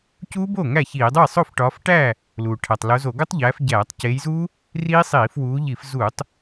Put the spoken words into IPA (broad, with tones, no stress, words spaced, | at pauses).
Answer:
cuː˦˥bo˥˩ ŋæ˥˩ çiː˧˩˧dˤu˥˩j sˤo˥˩fʈɒː˨˦fʈæː˥˩ | luː˩ ʈʰæ˩tˤlo˨˦ zo˧˩˧ɡo˦˥tˤʎæː˨˦f ɟæː˧˩˧tˤceː˨˦jzuː˦˥ | riː˦˥sˤiː˧˩˧fwuː˨˦ ʎi˧˩˧fzuː˧˩˧tˤ